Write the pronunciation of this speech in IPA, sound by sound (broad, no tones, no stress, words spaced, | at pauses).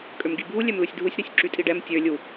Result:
kʼømɡibʱu lʲɛmlusʲdʱusʲ ɾøsʲǁytʼiɖɛm tʲø lʲu